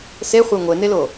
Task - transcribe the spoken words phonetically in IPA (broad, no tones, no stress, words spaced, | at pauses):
seχʷa ŋʷenelo